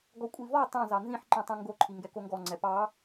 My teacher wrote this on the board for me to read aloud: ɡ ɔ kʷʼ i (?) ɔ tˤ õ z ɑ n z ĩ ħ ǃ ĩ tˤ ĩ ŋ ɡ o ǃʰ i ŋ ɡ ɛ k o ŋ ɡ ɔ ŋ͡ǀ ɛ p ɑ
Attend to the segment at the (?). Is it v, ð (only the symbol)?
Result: v